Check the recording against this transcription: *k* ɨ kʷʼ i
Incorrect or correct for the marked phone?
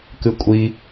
correct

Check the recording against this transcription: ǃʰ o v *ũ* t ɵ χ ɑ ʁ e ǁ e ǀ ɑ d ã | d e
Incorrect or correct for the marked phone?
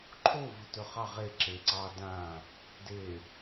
incorrect: u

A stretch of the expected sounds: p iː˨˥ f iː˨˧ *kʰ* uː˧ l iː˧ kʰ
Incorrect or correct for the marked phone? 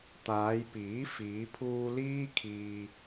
incorrect: pʰ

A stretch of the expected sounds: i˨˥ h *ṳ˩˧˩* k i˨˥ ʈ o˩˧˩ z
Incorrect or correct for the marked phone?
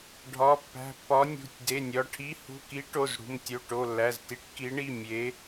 correct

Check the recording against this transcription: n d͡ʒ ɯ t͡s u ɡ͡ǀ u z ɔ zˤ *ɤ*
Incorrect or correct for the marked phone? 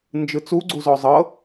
correct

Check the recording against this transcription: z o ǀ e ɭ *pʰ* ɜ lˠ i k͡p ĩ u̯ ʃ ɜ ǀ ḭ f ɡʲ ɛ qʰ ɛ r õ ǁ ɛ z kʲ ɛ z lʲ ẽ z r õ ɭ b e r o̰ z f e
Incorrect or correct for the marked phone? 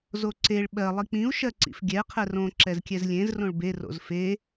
incorrect: ɓ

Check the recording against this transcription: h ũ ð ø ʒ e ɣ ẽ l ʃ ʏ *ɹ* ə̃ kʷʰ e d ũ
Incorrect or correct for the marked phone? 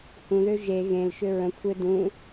correct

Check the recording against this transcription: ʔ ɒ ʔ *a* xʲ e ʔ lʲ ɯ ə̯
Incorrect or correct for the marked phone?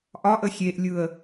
incorrect: ə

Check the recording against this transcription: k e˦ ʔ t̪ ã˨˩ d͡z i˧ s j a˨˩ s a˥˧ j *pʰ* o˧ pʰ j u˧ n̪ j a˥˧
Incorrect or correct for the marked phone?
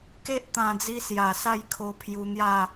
incorrect: kʰ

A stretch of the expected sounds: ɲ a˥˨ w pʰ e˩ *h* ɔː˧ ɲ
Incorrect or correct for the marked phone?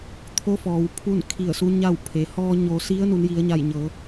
correct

